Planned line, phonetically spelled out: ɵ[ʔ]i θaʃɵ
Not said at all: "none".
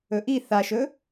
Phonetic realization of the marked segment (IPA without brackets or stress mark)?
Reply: ʔ